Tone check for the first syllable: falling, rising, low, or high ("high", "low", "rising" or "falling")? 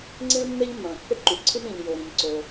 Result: high